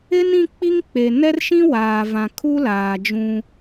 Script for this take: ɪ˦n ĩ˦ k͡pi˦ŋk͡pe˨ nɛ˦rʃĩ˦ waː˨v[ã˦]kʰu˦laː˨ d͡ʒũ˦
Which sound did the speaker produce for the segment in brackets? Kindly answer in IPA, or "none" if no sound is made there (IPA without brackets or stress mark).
ã˨